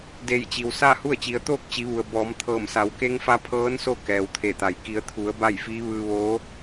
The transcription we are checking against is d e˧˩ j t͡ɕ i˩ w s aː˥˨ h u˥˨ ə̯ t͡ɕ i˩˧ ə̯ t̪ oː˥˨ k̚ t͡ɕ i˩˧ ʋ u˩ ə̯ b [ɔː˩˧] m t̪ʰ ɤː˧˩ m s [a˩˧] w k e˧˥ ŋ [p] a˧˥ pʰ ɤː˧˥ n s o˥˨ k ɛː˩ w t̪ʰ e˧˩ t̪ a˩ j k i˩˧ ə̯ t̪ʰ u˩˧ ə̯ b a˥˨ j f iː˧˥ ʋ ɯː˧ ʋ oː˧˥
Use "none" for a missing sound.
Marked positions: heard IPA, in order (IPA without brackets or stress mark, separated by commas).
ɔː˩˧, a˩˧, f